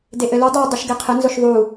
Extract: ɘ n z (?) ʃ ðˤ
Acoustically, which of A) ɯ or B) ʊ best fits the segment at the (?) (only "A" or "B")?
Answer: B